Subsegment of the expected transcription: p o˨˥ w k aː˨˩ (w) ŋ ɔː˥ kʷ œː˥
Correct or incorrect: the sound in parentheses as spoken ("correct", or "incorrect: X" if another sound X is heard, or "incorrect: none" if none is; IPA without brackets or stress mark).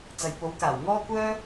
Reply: correct